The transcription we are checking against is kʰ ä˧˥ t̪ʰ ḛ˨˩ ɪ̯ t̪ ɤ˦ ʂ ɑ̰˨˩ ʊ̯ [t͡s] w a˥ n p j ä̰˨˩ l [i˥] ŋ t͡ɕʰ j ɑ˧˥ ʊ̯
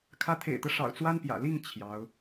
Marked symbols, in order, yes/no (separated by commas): yes, no